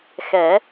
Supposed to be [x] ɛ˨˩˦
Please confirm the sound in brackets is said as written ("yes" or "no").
yes